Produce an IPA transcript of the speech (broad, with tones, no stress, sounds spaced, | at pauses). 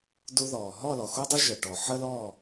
d u˧ ð ɔː˨ ɦ ɔ˦˨ l ɔ˨ x o˦ dˤ ʊ˦ ʒ ə˨ ʈ ɔ˨ ħ ə˦ l ɔː˦˨